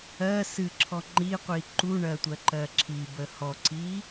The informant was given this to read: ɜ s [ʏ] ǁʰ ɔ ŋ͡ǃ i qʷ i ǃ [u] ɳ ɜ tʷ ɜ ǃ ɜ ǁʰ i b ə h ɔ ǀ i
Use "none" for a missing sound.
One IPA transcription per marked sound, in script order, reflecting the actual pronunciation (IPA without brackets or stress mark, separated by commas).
ɨ, u